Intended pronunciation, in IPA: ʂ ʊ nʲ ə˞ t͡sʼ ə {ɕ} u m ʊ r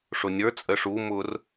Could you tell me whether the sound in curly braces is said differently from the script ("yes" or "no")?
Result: yes